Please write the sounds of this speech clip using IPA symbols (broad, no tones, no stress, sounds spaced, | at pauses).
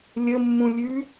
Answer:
lʲ ə mː ũ lʲ ʉ